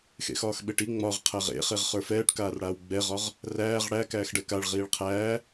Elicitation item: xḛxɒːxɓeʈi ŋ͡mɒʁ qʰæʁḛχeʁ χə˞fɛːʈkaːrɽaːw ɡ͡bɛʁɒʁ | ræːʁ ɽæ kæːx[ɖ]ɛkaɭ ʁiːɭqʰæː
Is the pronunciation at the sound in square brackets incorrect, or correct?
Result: correct